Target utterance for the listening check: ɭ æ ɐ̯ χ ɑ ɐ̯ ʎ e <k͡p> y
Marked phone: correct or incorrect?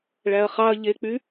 correct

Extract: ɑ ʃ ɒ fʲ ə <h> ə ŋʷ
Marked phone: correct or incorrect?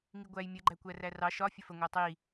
incorrect: f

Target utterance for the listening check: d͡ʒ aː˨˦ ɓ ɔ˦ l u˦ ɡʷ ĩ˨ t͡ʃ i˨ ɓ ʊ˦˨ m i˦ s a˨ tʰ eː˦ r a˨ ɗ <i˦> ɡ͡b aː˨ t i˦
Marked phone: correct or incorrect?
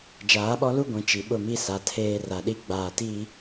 correct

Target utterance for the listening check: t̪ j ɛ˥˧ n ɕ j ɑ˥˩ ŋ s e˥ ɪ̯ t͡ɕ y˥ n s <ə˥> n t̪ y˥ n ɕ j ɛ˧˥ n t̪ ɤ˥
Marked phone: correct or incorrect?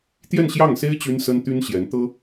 correct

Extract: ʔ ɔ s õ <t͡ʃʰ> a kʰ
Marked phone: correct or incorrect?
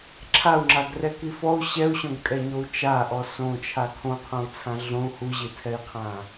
correct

